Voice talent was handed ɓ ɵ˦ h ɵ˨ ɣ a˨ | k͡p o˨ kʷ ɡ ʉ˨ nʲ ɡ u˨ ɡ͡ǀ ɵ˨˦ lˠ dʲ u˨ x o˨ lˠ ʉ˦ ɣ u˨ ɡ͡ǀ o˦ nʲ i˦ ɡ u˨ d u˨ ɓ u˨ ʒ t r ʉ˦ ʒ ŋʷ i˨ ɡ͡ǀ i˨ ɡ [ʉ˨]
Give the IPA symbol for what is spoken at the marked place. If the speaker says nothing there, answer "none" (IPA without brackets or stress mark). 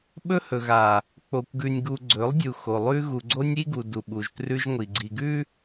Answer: ʉ˦